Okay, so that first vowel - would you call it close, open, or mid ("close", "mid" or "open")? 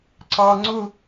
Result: open